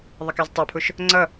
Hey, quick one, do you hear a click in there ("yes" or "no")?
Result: yes